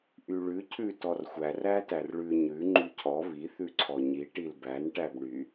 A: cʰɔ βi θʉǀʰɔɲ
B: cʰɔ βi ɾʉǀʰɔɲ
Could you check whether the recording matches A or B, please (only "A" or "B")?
A